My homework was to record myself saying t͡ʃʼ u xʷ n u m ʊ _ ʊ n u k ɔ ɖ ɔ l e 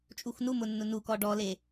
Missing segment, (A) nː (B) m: A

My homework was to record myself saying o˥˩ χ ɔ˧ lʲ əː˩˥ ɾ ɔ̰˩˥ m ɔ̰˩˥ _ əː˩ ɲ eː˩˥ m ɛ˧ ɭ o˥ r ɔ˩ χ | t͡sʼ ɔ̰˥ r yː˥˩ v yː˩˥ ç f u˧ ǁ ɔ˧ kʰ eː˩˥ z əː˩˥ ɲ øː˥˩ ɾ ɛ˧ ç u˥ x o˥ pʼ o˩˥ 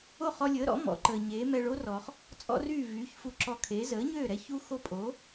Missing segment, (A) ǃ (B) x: A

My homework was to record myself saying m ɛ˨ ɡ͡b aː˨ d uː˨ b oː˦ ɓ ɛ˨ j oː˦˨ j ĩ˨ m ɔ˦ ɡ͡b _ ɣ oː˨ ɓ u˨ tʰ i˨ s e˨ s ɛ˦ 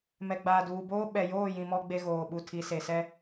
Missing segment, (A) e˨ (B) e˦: B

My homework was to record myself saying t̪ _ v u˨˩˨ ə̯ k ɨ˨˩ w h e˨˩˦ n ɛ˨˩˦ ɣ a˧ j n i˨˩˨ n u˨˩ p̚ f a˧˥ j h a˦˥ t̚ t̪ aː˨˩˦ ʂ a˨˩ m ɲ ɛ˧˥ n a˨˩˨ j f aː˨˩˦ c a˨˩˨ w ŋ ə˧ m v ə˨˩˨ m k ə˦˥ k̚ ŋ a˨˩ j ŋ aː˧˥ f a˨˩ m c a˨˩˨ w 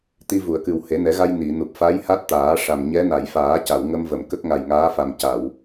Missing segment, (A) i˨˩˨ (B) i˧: B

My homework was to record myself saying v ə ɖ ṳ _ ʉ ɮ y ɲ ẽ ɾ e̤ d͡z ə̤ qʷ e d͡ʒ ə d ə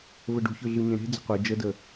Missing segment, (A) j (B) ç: B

